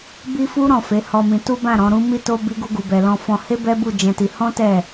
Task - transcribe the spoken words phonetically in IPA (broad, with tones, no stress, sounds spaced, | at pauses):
b i˦ f u˦ ɾ ɔ̃˦˨ f e˨˦ h ɔ˧ m ĩ˧ t u˦ b ã˦˨ ɾ ɔ̃˨˦ ɾ ũ˦ m i˦ t o˦ b i˦ ɡ u˦ ɡ u˧ b ɛ˧ l ɔ̃˧ f ɔ̃˧ h e˦ b ɛ˦ b u˦˨ d͡ʒ ɛ̃˧ t i˧ h ɔ̃˦ t ɛ˦˨